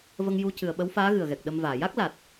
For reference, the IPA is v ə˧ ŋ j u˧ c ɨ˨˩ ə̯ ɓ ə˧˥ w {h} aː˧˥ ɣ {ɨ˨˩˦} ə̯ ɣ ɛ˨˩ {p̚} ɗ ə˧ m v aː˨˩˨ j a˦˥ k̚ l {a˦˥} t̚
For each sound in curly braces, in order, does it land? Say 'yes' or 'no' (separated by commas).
no, no, no, no